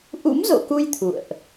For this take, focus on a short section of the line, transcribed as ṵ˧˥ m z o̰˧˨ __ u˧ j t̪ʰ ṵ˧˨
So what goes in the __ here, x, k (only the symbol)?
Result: k